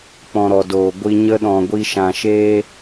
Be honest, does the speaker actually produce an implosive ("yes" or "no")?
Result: yes